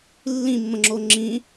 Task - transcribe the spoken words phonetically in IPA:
lː ĩ mː ə̃ ŋ͡ǁ o ŋ͡ǁ ĩ

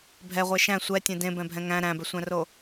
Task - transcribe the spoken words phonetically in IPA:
bʱ ɛ ʁʷ e ʃ æ̃ sʷ ɛ tʲ ẽ d ẽ b ɛ̃ bʱ ɛ̃ ŋ æ̃ ɾ æ̃ b ɛ sʷ æ̃ r o

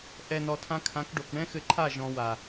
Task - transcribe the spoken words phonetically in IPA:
ʔ ɛ˨ n ɔ˨ tʰ ã˧ kʰ ã˨˦ k ɖ o˨ k ɳ ɛ̃˦ x ɘ˧ ǃʰ a˦˨ ʒ ɔ̃˧ w a˨

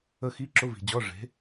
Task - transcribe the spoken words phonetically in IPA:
ə˥˧ x i˧˥˧ ǁ ʊ˧˥˧ v i̤˨ d͡ʑ ɔ˧˥˧ ʐ e̤˨˥

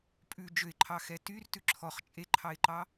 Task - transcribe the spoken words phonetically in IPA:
pʼ ʉ d͡ʒ ø ɪ̯ ǃʰ ɑ x ɛ t y r t ʉ ǁʰ ɔ χ t͡ʃʼ e ǃʰ ɑ ɪ̯ ǃ ɑ

